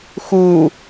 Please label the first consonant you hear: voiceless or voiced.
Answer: voiceless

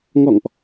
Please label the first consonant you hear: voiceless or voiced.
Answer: voiced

